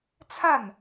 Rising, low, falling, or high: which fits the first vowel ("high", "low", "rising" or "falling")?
falling